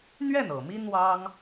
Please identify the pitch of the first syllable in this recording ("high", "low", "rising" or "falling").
falling